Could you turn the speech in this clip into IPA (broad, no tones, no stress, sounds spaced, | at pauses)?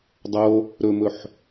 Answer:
dˤ o | ɾ ɵ m ɵ ħ